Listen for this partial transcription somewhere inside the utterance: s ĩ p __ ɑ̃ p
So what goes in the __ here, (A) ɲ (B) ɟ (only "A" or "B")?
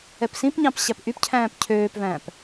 A